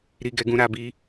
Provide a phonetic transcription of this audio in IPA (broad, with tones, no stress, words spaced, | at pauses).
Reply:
ɾi˦ɡɛ˦ɡũ˦ ɾa˦bi˦